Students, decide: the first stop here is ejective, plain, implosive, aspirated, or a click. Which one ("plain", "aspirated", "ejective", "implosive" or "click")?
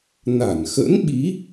implosive